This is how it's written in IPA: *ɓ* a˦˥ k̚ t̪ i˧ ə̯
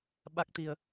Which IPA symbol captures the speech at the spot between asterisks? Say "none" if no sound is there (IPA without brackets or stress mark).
ɓ